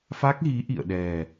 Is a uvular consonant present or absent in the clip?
absent